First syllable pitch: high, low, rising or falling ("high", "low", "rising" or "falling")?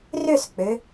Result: falling